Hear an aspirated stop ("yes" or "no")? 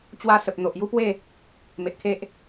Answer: yes